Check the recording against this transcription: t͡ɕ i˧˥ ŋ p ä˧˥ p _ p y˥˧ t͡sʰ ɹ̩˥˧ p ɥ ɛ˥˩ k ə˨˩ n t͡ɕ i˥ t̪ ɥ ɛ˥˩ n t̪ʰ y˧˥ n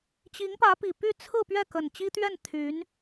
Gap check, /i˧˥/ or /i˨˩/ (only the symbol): i˨˩